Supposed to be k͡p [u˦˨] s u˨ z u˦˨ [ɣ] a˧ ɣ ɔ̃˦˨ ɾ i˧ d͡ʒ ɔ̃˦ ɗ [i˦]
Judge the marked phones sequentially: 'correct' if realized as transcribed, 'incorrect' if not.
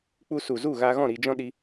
incorrect: u˧, correct, correct

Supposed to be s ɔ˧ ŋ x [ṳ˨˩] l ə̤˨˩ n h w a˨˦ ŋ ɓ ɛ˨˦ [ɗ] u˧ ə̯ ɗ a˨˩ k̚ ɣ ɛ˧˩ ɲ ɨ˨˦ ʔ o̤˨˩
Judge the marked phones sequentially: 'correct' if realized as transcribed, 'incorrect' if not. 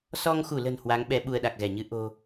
incorrect: u˧˩, incorrect: ɓ

